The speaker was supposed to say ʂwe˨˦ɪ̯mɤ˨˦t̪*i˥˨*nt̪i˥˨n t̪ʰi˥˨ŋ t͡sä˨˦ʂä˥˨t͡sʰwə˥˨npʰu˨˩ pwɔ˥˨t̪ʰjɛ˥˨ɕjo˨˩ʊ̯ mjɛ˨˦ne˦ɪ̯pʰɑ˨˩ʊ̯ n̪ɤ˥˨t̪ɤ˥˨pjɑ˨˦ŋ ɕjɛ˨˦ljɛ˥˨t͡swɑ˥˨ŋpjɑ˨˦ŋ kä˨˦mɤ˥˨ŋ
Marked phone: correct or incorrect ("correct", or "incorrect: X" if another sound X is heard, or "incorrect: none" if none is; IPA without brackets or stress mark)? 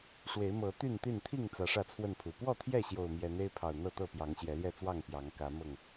incorrect: y˥˨